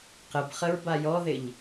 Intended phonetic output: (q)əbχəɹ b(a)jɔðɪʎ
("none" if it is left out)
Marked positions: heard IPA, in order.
q, a

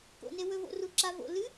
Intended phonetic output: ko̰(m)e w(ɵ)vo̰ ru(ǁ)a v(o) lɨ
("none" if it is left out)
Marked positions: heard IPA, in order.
n, ɵ, ǁ, o̰

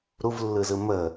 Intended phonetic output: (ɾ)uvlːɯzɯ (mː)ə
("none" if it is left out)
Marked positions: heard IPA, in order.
ɾ, m

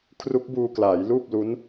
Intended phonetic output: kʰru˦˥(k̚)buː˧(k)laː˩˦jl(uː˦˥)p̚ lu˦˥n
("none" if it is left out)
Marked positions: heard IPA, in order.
k̚, k, uː˥˩

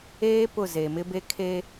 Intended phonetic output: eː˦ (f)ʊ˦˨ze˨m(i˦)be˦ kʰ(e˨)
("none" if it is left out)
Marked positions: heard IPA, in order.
p, ɪ˦, e˦

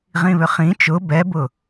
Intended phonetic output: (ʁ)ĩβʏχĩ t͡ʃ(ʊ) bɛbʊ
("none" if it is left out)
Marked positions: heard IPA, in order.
ʁ, ʊ

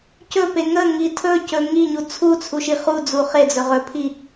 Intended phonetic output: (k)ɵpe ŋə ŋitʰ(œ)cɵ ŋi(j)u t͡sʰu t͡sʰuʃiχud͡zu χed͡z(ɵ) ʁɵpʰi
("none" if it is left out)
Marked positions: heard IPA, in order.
c, ɵ, ɲ, ɵ

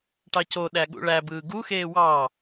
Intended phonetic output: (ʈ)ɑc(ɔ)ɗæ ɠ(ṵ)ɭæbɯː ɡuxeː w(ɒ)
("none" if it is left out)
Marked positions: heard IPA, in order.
ʈ, o, ṵ, ɑ

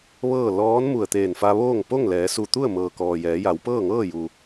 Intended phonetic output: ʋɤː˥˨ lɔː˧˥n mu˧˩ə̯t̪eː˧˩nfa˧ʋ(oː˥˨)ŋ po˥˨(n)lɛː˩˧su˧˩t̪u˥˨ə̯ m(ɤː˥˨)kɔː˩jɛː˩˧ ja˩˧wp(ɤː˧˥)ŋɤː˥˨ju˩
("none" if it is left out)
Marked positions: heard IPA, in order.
oː˥˨, ŋ, ɤː˩, ɤː˥˨

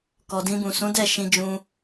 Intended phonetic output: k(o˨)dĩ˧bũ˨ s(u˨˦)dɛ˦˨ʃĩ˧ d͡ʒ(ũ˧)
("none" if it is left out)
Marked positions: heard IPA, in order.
ɔ˨, ũ˨˦, ũ˧

